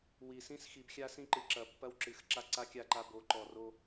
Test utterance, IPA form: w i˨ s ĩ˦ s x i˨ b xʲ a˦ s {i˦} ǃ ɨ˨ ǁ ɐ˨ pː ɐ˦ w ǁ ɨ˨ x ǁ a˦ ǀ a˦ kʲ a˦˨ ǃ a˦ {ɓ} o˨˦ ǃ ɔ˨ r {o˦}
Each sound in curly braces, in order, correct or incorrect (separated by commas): incorrect, incorrect, correct